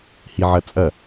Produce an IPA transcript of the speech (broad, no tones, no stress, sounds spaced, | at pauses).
h i ʕ ɐ t͡sʼ ɐ